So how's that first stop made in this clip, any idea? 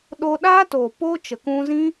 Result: implosive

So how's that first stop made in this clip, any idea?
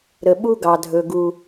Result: implosive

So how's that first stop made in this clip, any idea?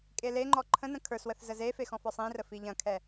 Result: ejective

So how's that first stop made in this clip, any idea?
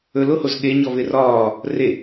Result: implosive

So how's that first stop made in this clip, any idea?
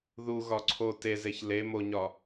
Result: click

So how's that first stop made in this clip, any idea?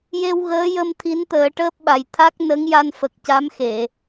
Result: aspirated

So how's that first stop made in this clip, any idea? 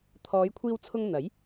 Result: aspirated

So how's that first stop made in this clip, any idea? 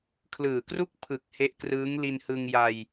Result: aspirated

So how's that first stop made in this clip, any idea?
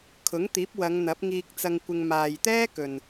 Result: aspirated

